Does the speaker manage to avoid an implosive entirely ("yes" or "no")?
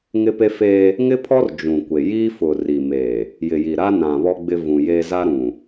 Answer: yes